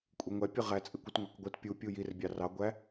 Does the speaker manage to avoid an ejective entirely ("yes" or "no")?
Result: no